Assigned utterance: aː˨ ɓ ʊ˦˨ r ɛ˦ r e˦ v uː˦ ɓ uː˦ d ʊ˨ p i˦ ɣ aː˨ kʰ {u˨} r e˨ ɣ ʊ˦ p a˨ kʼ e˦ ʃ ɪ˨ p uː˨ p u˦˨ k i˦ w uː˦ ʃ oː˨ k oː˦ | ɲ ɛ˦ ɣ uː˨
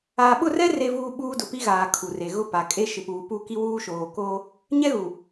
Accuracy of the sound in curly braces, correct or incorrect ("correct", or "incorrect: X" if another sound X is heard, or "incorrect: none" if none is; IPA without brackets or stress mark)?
correct